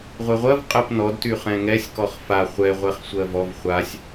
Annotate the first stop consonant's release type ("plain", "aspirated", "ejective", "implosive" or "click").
ejective